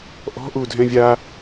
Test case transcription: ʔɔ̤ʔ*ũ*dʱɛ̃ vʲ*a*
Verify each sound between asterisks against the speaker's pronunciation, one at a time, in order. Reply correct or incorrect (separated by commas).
incorrect, correct